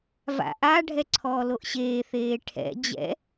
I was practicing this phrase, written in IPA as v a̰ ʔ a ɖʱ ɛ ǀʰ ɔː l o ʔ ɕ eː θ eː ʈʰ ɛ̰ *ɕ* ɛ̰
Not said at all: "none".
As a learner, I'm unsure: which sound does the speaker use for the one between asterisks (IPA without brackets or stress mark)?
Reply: d͡ʑ